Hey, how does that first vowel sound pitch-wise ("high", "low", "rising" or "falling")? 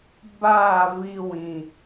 falling